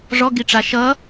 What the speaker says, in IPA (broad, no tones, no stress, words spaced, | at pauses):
ʐɔɡiʈ͡ʂa ʃʌ